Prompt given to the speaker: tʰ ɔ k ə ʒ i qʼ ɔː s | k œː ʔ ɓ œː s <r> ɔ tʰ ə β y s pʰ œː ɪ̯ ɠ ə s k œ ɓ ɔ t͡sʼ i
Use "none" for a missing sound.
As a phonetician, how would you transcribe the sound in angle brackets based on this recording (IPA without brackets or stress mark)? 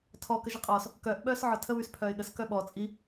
ʕ